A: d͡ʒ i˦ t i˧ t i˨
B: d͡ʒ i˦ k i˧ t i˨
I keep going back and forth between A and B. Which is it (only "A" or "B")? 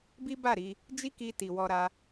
B